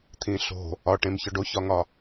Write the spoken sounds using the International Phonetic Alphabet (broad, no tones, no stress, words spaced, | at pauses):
t̪ʰĩɬo̤ | ɒʈẽmçɒɖ oçɒŋɒ